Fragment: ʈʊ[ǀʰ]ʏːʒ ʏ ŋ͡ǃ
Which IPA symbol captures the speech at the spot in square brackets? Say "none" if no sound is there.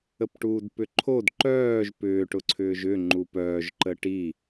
ǀʰ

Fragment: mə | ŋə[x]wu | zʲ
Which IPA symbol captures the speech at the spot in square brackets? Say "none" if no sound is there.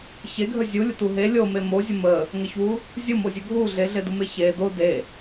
ç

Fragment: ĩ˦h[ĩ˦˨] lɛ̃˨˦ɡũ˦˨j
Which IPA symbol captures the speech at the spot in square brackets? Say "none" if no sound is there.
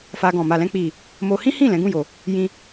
ĩ˦˨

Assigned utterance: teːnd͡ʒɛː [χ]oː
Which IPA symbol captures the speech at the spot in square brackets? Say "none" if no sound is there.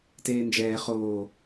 χ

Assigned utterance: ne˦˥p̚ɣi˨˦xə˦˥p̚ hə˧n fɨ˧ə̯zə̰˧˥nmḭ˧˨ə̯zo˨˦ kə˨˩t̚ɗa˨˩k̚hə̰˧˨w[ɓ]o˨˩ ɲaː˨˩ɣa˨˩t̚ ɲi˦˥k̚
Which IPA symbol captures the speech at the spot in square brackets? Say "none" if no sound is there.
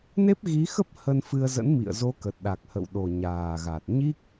ɗ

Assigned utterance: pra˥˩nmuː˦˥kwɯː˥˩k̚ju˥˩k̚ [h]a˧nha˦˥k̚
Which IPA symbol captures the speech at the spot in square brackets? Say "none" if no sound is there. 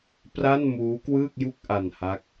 ʔ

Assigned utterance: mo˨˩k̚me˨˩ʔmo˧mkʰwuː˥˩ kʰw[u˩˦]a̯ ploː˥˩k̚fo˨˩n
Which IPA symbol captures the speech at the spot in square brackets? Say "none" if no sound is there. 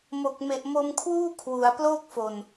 u˩˦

